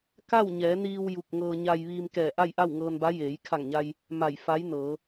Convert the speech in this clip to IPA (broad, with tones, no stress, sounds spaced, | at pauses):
k a˥˨ w ɲ ɛː˩˧ n iː˧ w j u˧˩ k̚ ŋ ɤː˧ ɲ a˧ j ʋ iː˧ m k ɛː˧˩ ʔ a˥˨ j ʔ a˥˨ w ŋ ɤː˧ n b a˧˥ j eː˩˧ j kʰ a˧˩ ŋ ɲ a˧ j | m a˧˩ j f a˧˥ j n ɤː˩˧